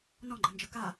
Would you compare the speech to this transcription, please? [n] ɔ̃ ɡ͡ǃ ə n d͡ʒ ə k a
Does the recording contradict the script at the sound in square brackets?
no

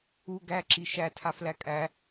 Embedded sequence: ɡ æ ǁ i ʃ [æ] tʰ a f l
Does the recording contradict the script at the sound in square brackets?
no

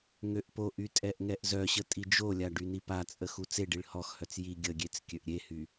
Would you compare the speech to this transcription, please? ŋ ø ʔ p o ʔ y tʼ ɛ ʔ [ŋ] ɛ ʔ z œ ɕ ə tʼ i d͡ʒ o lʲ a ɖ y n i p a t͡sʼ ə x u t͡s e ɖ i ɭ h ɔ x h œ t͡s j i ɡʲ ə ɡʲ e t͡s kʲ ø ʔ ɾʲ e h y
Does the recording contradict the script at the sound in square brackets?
no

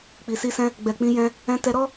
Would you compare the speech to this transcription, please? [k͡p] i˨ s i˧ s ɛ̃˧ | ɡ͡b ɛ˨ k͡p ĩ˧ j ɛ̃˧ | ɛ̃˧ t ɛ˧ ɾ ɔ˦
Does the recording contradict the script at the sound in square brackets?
no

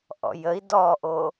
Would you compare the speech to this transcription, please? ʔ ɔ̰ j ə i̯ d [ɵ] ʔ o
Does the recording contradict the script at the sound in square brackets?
yes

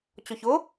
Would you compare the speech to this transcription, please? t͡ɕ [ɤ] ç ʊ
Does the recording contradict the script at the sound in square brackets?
yes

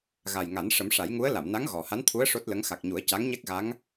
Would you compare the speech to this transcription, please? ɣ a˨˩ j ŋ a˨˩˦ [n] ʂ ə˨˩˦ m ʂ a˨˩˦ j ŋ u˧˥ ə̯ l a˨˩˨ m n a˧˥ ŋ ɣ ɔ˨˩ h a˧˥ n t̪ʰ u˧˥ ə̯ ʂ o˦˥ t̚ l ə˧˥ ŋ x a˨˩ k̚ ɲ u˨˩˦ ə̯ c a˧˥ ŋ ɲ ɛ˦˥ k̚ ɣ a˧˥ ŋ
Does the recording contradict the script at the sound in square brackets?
no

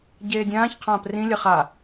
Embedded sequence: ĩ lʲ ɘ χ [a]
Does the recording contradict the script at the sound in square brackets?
no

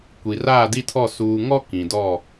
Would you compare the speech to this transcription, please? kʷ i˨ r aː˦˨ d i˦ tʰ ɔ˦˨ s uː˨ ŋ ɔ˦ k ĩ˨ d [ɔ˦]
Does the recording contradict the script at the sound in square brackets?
yes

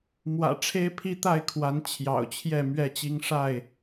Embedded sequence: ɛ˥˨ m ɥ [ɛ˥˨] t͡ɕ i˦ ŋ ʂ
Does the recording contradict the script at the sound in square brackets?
no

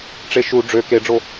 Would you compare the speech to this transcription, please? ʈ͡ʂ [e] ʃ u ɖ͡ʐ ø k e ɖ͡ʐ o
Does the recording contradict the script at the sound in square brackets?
no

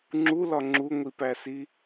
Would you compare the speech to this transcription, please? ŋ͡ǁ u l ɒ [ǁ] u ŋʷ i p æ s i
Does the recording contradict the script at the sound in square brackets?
yes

